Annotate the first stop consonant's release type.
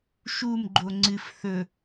click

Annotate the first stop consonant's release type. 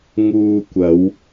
plain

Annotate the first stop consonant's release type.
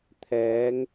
aspirated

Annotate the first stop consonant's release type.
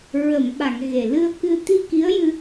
implosive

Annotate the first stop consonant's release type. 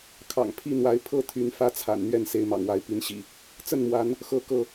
aspirated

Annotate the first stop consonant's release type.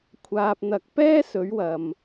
aspirated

